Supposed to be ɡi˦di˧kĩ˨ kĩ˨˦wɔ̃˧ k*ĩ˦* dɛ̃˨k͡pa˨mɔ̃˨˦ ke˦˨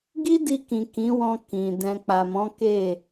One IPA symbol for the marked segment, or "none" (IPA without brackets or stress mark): ĩ˨